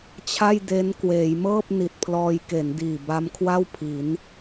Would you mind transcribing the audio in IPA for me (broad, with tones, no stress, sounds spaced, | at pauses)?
t͡ɕʰ a˥˩ j d e˦˥ n k w eː˩˦ j m ɤː˥˩ p̚ n i˨˩ t̚ pʰ l ɔː˧ j k e˩˦ n d iː˨˩ b a˦˥ m kʰ w a˥˩ w pʰ i˩˦ n